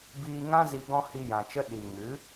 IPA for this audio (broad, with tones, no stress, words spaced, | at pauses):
biː˧ŋã˦ zi˧ ɡɔ̃˦hi˧jã˨t͡ʃə˦ ɗi˨ŋɨ˨˦